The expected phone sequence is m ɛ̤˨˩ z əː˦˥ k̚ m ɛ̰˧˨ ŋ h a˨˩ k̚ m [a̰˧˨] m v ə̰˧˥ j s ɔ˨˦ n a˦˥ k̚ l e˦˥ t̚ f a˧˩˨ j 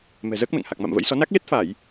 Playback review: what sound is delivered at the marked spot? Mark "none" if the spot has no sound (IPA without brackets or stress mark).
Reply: a̰˧˨